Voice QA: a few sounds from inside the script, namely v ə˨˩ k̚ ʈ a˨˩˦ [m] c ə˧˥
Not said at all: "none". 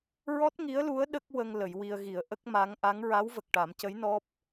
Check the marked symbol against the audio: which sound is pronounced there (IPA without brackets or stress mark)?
m